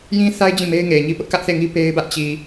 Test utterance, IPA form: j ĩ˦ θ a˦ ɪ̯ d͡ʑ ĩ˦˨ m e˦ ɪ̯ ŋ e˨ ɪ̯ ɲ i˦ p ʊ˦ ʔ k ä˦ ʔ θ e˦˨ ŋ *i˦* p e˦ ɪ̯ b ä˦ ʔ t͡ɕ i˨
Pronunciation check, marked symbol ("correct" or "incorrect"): correct